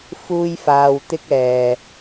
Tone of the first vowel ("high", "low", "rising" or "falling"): high